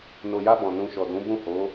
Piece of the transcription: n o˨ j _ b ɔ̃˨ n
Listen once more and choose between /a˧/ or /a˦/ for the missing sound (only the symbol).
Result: a˧